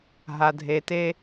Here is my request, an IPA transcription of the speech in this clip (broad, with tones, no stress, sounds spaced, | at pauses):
ɦ a˨ dʱ e˨ t e˦